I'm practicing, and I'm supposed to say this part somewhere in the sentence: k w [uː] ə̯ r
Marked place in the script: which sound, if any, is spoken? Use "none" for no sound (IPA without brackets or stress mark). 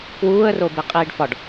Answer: uː